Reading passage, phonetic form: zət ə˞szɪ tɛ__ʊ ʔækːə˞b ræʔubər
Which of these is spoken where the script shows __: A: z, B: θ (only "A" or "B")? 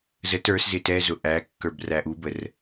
A